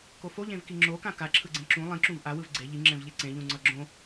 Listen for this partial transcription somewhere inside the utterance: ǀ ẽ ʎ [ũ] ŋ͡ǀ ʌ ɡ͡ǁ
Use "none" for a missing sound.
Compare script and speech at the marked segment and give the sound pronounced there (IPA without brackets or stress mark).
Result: ũ